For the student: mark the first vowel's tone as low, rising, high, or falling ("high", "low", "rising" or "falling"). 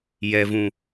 low